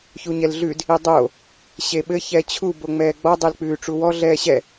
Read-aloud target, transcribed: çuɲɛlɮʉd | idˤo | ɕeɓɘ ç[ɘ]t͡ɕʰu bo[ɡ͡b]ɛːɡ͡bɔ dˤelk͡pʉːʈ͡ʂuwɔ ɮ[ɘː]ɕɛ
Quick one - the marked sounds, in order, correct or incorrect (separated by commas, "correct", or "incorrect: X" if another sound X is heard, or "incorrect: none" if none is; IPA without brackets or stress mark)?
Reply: incorrect: ɛ, incorrect: ŋ͡m, incorrect: ɛː